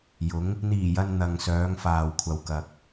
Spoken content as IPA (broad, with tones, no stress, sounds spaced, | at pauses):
j ʊ˨˧ ŋ | n̪ iː˨˩ j ɐ˨ n n̪ ɐ˨ ŋ s œː˨˧ ŋ f aː˨ w kʷʰ ɐ˨ w k ɐ˨ k̚